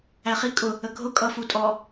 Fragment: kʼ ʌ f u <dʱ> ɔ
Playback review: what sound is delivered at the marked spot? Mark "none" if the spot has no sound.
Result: tʼ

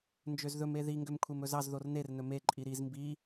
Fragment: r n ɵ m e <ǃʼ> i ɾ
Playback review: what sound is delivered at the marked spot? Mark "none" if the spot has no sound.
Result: ǃʼ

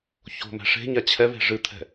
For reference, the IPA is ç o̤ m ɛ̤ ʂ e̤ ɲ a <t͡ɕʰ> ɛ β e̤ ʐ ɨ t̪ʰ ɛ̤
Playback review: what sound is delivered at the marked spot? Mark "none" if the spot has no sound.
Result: t͡ɕʰ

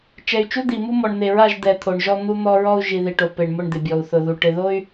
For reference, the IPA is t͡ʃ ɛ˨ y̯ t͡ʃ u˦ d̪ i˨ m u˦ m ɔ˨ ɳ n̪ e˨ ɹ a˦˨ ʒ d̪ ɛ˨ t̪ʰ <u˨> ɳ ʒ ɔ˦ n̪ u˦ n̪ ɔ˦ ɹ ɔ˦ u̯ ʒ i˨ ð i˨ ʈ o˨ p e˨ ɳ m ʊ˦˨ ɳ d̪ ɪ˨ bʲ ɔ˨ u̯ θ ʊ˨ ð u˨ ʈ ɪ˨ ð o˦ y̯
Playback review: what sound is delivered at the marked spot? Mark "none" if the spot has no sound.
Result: o˨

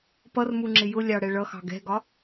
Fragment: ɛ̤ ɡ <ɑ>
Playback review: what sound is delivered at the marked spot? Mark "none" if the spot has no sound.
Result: ɒ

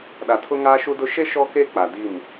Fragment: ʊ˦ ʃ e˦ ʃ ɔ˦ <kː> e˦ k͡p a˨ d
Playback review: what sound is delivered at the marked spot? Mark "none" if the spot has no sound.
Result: k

